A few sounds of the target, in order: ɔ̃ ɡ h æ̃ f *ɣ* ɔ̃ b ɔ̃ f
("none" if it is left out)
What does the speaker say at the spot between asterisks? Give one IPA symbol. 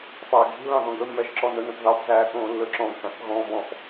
ɣ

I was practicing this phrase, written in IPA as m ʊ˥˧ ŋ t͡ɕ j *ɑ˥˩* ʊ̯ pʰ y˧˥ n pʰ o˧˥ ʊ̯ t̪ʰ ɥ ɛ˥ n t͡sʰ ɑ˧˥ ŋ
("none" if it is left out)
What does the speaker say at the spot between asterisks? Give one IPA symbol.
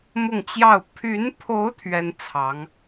ɑ˥˩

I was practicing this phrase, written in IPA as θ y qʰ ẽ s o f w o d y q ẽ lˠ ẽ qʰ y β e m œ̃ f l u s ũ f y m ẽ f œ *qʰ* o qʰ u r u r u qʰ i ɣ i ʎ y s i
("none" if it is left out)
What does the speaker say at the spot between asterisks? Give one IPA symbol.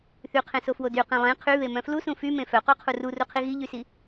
q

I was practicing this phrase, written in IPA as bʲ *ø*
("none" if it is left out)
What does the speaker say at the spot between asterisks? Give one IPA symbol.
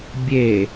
e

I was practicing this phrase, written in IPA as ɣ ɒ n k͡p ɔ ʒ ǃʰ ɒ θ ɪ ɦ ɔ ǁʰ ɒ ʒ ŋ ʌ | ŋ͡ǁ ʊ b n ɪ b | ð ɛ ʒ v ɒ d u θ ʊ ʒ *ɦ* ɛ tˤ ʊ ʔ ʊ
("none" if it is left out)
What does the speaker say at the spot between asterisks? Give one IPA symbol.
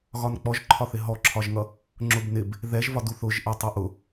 ʔ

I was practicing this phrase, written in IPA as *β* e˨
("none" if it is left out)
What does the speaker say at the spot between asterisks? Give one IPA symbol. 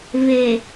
β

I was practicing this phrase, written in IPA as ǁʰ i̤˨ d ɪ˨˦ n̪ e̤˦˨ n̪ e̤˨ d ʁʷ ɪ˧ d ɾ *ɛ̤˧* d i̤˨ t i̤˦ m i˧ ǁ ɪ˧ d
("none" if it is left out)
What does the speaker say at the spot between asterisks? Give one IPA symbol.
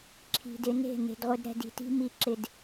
ɛ̤˧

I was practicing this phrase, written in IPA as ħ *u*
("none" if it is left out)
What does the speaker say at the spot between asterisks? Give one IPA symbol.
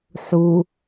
u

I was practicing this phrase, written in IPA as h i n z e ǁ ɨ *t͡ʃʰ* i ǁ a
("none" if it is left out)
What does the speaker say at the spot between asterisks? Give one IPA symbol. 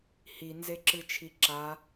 t͡ʃʰ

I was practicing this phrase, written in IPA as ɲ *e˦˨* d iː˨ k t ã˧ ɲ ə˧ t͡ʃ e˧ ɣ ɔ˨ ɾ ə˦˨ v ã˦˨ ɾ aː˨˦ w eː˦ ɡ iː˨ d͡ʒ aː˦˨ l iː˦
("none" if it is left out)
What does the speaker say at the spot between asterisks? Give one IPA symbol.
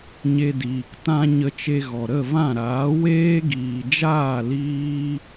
e˧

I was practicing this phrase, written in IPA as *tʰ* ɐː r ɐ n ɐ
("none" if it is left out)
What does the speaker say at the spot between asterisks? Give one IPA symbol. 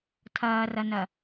tʰ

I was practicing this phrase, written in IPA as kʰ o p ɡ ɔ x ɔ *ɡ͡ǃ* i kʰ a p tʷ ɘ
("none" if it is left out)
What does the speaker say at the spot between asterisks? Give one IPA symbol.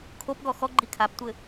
ɡ͡ǃ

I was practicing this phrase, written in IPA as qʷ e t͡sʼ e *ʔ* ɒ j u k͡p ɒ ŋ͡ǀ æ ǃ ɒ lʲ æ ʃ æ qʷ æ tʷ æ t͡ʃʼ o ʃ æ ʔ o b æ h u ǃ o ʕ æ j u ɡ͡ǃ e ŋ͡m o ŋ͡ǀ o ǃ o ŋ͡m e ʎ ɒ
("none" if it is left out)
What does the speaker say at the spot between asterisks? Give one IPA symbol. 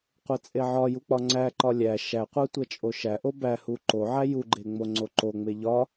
ʕ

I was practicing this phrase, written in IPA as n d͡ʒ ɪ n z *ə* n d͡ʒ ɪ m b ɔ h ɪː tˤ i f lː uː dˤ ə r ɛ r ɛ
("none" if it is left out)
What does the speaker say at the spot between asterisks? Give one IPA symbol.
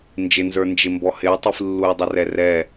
ə˞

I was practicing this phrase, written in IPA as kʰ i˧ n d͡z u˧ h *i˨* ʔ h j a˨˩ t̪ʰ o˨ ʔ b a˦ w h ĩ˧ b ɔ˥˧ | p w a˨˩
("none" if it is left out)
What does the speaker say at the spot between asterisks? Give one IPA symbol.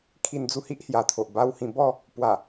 i˦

